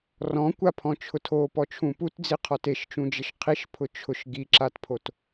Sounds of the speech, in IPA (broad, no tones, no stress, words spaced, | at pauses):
rɔ̃kʷapʰɔ̃t͡ʃʰʊ tʰopɔt͡ʃʰũ putd͡ziqʰɔt eʃt͡ʃũd͡ʒɪʃ qʰiʃpʰʊ t͡ʃʰʊʃ ɡiǁatpʰot